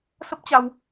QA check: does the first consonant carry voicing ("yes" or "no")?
no